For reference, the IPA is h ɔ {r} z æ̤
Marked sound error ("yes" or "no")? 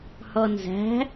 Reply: yes